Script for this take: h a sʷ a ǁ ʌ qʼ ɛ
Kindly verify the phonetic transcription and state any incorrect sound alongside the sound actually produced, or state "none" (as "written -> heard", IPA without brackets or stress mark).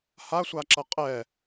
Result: none